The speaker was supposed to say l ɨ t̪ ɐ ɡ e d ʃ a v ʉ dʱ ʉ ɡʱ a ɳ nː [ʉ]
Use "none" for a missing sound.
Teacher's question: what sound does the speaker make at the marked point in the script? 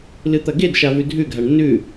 ʉ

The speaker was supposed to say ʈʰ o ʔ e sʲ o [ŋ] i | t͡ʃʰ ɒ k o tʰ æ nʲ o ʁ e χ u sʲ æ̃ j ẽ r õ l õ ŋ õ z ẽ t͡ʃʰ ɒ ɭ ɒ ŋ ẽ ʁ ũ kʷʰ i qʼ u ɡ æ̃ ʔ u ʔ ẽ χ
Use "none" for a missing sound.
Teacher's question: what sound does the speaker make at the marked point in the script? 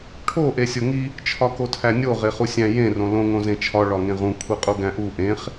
ŋ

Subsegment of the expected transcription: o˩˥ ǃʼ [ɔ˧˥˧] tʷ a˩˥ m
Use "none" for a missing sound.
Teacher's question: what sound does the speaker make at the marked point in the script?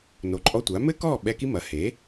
ɔ˧˥˧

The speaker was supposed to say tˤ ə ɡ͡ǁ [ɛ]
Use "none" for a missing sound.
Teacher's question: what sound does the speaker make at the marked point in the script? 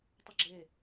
e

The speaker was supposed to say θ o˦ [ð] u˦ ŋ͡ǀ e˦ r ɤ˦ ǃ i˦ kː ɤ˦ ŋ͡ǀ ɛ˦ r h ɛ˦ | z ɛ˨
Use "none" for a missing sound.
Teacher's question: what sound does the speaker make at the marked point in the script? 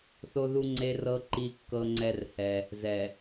ð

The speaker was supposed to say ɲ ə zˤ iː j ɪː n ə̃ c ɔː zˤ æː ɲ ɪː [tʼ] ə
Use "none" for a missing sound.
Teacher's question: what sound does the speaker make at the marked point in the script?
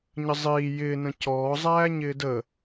d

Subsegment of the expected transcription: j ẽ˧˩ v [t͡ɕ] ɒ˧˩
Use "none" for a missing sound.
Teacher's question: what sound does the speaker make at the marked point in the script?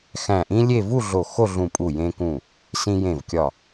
kʲ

